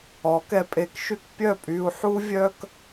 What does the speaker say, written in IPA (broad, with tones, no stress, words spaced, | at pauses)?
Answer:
ɔ˨˦kɛ˧pʼe˧kʃy˦k pʲœ˦˨pʼy˧u̯ ħu˦vʲœ˦k